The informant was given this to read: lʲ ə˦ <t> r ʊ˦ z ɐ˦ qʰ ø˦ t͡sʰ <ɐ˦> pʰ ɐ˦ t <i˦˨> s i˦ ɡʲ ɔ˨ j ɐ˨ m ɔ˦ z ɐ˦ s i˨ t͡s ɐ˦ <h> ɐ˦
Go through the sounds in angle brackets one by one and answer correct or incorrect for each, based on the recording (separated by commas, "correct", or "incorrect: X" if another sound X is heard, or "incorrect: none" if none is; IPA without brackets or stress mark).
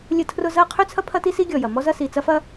incorrect: tʰ, correct, incorrect: i˦, incorrect: f